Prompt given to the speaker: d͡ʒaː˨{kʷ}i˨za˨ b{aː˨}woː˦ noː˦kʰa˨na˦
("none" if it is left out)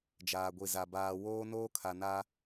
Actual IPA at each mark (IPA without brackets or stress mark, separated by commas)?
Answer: ɡʷ, aː˨